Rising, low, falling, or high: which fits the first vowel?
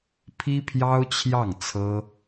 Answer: high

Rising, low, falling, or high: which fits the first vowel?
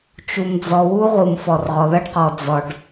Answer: low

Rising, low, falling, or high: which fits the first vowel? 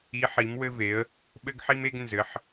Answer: rising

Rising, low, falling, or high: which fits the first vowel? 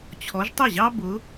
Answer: rising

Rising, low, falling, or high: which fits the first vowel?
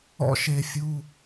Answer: falling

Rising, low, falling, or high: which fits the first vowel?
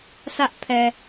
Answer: high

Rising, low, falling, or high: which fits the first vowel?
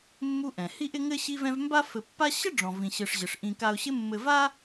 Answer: high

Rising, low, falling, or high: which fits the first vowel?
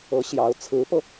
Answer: rising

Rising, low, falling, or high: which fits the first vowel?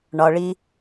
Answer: low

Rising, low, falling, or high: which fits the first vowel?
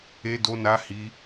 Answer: high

